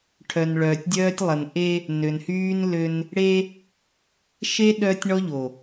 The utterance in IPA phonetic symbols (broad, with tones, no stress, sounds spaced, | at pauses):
ʈʰ œ˨ n ɭ œː˨ tʲ dʲ œː˦ tʲ lˠ ə˨ n ʔ e˦ | n ø˨ n h yː˦ n l ø˦ n | ɽ e˦ | ʃ e˦ ɗ œː˦ tʲ ɳ ɔ˦ ʎ o˨